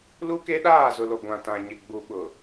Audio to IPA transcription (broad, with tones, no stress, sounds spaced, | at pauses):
l u˦ k e˦ ɗ aː˦˨ z ʊ˨ l o˨ ɡʷ ã˨ t ã˨ ɲ ɪ˨ ɡ͡b u˨ ɓ ʊ˨